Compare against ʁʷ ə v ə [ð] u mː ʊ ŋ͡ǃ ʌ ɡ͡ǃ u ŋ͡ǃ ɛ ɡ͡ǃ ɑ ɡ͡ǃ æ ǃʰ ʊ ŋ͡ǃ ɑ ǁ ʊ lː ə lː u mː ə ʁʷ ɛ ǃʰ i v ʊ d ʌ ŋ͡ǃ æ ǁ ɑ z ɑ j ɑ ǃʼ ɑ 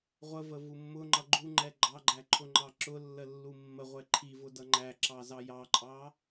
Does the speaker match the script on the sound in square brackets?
no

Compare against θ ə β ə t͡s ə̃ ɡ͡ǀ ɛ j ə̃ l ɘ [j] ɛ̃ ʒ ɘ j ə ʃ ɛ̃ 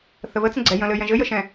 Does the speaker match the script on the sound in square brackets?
yes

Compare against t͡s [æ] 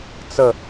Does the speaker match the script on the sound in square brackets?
no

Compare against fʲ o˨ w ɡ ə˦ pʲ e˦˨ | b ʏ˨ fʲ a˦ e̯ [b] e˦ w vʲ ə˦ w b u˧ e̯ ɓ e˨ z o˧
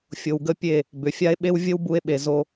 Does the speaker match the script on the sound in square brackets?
no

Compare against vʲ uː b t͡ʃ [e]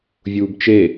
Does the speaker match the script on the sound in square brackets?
yes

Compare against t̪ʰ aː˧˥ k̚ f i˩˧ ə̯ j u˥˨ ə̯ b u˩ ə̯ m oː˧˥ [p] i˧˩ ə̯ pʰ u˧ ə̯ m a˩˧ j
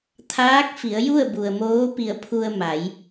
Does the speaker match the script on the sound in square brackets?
yes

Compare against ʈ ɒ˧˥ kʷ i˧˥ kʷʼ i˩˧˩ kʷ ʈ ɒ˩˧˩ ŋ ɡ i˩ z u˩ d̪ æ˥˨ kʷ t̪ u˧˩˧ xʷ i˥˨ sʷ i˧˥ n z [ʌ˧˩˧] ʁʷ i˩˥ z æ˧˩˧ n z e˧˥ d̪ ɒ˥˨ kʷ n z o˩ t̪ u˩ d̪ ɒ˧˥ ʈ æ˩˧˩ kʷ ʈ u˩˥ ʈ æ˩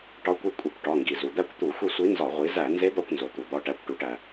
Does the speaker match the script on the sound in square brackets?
no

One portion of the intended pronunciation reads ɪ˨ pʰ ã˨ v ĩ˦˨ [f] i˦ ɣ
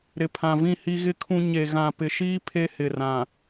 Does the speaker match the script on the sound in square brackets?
no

